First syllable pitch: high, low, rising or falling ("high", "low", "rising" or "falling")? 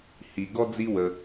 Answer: low